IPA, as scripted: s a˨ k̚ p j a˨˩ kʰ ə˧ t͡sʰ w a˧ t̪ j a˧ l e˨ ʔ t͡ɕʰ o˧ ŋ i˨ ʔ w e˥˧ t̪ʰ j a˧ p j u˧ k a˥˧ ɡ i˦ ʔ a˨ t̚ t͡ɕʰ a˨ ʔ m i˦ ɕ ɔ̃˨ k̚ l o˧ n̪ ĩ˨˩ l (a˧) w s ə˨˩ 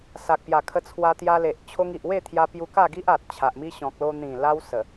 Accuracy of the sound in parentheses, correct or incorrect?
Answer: correct